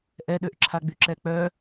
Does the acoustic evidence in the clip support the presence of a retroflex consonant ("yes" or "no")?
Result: no